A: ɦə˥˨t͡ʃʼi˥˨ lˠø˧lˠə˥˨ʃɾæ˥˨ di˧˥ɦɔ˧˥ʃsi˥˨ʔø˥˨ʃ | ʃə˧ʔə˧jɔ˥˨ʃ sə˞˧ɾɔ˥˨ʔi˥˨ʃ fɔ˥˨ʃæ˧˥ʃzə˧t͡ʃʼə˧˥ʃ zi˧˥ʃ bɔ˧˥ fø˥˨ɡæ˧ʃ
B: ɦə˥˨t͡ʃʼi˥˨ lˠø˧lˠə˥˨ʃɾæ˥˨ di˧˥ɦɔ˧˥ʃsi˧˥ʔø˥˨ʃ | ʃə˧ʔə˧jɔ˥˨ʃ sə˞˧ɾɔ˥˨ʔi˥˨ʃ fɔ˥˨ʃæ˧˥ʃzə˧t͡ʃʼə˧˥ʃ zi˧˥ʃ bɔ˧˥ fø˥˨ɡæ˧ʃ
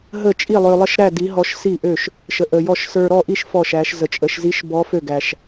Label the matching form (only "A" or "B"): A